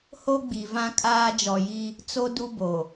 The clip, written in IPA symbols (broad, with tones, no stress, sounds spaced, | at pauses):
h o˦ ɡ͡b i˨ v ã˦ kʼ aː˦ d͡ʒ ɔ˨ j i˦ | t͡s o˦ d u˦ b o˨